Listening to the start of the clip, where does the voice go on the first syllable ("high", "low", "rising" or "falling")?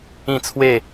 falling